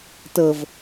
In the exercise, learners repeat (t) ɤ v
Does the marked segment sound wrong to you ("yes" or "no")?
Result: no